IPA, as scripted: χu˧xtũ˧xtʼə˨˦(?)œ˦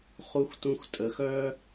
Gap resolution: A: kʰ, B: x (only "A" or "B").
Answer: B